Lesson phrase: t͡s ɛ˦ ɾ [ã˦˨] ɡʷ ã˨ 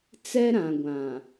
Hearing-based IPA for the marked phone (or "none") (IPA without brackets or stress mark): ã˨